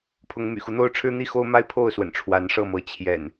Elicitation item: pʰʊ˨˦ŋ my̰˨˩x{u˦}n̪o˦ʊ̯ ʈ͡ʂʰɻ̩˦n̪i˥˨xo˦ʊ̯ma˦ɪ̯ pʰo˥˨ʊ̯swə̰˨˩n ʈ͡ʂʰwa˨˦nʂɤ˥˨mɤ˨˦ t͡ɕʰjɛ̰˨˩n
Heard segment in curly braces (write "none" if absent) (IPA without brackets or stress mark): u˦